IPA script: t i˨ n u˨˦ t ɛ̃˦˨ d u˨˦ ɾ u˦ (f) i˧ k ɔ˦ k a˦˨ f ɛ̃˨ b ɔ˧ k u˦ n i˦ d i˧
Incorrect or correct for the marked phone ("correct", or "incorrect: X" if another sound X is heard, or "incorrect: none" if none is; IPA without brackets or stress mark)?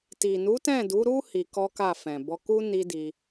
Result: incorrect: h